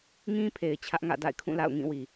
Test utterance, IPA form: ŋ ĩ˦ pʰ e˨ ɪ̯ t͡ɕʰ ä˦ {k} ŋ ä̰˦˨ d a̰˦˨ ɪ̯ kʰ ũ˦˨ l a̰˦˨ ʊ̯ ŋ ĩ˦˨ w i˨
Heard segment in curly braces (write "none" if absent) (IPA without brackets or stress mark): ʔ